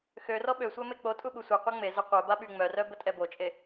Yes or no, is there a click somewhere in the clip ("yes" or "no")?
no